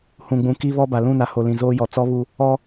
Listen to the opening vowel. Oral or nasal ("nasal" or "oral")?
nasal